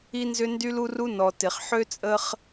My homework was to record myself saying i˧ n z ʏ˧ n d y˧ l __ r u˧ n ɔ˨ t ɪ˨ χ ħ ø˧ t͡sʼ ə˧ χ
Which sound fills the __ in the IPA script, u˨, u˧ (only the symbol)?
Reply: u˧